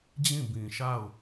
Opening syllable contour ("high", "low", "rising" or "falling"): falling